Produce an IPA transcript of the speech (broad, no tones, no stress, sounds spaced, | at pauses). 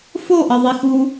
f o ʔ ʌ ðˤ i x uː